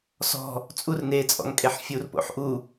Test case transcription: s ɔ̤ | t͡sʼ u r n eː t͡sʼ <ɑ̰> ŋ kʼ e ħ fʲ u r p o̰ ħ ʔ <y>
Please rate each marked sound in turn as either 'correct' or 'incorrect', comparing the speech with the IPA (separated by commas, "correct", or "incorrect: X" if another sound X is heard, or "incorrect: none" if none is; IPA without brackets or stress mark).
incorrect: ɔ̰, incorrect: u